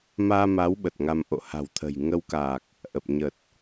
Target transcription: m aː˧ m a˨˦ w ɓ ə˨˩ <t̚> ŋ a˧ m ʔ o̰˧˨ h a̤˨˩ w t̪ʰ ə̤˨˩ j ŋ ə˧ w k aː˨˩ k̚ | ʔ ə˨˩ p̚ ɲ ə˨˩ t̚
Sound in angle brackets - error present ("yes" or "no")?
no